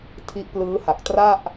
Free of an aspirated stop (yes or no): no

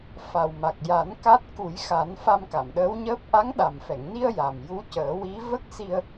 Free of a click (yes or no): yes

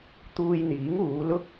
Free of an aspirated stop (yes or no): yes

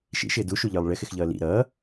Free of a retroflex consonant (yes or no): no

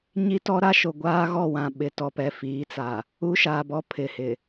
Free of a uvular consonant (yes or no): yes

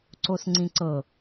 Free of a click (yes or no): no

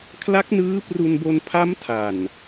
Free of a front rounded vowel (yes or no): yes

